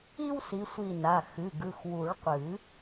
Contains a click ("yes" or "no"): no